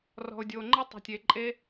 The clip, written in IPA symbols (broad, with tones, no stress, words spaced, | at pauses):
rɔ̤˨ʊ̯ dʲoː˨ŋ͡ǃe˦ tˤe̤˨tʲeː˨ǃʼe˦